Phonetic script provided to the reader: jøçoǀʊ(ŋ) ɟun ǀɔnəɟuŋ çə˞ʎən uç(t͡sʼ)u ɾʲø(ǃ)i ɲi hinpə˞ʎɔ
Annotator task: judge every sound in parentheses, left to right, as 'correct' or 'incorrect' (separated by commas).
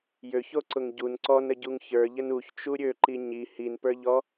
correct, incorrect, correct